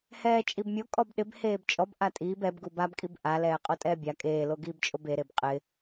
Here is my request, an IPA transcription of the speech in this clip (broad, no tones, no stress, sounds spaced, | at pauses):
h ɛː t͡ʃʼ i b mʲ o kʼ ɔ b ɗ ɪ b h eː b t͡ʃʼ ɔ b ʔ a tʼ iː b ɛ b ɡ u b a b kʼ i b ʔ a l ɛː qʼ o tʼ ɛː bʲ a kʼ eː l o ɡ iː b t͡ʃʼ o b e ɾ e b qʼ ɪ